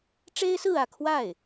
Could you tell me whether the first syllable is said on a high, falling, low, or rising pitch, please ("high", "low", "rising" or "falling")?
high